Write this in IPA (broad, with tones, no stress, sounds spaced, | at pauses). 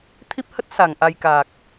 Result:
t̪ʰ i˦˥ p̚ h ə˦˥ t̚ s a˧˩ ŋ ʔ a˧ j k aː˨˩ k̚